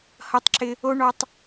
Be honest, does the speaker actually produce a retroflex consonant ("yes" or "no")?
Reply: yes